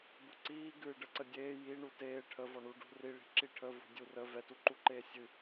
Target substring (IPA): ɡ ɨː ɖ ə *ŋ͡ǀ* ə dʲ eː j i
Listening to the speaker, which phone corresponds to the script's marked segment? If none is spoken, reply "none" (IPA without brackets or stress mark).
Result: ǀ